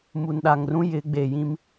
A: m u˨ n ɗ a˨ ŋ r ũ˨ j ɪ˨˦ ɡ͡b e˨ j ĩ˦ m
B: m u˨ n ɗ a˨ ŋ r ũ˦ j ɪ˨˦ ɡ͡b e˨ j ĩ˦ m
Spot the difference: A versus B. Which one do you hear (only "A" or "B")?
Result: B